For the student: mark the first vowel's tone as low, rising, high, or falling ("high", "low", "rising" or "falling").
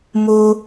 high